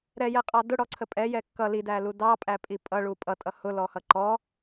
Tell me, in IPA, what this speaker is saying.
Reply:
ɾɛjɛqʼɑ dʊɽɔǀʰə pʼɛjɛ kːʌ lidælu dɑpʼæpʼi pʼʌɭu pʼʌtʼʌ hʊlɔhʌ ǃɔ

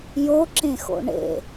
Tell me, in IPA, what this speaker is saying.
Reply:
joǁẽxo̰ ɳḛ

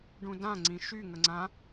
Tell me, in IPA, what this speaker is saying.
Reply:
ɖũdã ŋ͡ǀĩʃy ŋəŋ͡ǀã

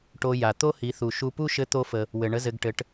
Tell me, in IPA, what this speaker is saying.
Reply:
ʈo˧ja˩ t̪o˥hi˩˧θu˩ʃu˧ pu˥ʃɘ˧˥t̪o˧fə˩ | wɘ˩ɳə˧˥zɘ˩˧ɡ ʈɘ˩˧ʈ

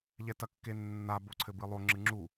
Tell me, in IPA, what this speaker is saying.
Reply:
ʎɛtɐkːenːa boǀʰɘbɨlˠo ŋ͡ǁɨŋ͡ǁu

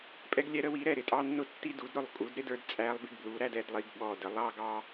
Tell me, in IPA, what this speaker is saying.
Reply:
pʼɛ˦ɡlʲɛ˦ ɾə˦wi˩˥ɾɛ˧˩ ɾɪ˧˩tʼɑ˦nːʊ˦ tːi˦du˩˥dɾʊ˧˩lˠkʼu˩˥d ɾɪ˩˥d ə˞˩˥dt͡sʼæ˦lˠbɪ˦ɡblu˩˥ ɾæ˦dɛ˦dlˠi˩˥ɡ ɓɔ˧˩də˩˥ lˠɑ˦ɡɑ˦

